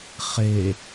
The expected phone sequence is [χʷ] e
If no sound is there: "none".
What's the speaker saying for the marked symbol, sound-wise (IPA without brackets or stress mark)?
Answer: χ